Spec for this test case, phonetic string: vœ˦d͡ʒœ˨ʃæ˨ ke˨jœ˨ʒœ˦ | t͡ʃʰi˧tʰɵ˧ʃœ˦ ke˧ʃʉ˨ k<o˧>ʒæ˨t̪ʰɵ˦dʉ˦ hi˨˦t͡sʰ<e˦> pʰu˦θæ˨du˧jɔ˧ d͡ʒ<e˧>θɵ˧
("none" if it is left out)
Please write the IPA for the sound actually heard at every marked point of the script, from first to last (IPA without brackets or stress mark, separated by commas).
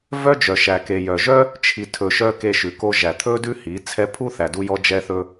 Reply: o˧, ɛ˦, ɛ˧